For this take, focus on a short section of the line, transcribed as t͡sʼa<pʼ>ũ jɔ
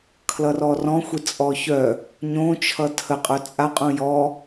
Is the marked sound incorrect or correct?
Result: incorrect